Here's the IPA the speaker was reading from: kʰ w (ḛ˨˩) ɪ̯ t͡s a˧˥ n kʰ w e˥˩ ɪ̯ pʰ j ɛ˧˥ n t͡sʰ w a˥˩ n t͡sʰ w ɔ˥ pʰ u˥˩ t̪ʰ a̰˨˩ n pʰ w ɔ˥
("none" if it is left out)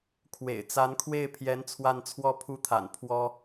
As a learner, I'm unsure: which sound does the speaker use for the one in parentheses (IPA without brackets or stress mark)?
ḛ˨˩